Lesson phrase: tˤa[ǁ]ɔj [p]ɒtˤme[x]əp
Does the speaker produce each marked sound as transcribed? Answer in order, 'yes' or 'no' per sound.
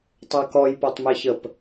no, yes, no

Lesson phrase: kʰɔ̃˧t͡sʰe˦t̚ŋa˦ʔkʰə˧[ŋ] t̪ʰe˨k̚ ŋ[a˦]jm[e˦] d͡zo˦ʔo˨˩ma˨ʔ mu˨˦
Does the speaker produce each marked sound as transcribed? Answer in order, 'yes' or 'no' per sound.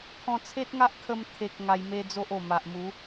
no, no, yes

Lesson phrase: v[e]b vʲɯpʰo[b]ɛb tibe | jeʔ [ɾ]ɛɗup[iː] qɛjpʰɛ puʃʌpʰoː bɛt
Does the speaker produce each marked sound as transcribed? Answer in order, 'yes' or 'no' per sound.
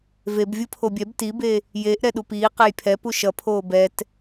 yes, no, yes, yes

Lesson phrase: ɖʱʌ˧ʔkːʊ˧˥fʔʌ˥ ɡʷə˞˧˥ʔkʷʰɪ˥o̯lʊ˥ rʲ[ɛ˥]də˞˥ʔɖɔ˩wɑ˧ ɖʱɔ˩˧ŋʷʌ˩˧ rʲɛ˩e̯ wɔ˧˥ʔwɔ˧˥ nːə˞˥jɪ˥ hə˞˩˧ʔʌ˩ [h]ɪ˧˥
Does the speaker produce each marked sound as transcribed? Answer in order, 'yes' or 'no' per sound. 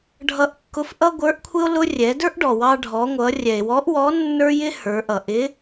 no, no

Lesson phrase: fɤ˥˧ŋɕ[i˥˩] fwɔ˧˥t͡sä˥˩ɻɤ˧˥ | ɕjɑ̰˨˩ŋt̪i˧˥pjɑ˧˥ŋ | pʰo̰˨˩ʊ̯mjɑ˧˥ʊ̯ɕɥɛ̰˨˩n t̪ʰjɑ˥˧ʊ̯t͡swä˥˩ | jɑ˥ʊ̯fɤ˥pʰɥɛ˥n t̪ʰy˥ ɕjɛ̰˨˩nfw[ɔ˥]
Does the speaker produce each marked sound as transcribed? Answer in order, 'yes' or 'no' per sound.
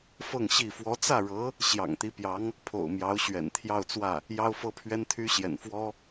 yes, yes

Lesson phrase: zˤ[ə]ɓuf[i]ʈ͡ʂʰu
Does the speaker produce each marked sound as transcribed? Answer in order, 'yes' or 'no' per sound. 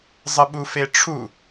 yes, no

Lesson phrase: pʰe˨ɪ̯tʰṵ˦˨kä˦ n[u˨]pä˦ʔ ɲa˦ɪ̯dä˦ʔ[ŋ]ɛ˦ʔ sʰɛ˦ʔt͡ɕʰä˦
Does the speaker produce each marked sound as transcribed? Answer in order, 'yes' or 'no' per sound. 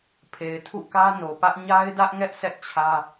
no, yes

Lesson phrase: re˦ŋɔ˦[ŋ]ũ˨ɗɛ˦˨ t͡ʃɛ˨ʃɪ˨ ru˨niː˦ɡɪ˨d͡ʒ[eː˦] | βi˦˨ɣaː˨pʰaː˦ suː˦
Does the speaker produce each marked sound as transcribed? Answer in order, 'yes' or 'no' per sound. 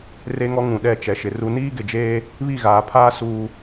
yes, yes

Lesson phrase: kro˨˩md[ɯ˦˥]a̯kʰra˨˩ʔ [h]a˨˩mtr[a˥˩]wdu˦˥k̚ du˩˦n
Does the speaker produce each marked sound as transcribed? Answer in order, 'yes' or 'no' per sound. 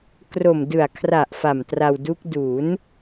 no, no, no

